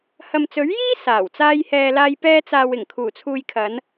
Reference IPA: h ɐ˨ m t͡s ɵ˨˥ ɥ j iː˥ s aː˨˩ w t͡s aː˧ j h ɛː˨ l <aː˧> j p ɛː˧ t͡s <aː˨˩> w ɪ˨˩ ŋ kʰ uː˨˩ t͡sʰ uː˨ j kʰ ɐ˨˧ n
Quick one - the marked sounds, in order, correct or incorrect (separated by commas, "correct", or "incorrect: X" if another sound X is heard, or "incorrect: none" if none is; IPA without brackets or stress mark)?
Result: correct, incorrect: aː˨